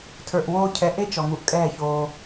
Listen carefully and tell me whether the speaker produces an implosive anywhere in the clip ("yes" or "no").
no